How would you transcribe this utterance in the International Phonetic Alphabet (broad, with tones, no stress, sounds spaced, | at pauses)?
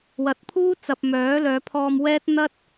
w ɐ˨ t̚ pʰ uː˥ t͡s ɐ˨ p̚ m œː˨˥ l œː˨˧ pʰ ɔː˧ m w ɛː˥ t̚ n̪ ɐ˥ t̚